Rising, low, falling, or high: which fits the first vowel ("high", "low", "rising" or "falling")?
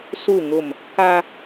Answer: falling